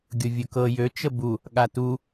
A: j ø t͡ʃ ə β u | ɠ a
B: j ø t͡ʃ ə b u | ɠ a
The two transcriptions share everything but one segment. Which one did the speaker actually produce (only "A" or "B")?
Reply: B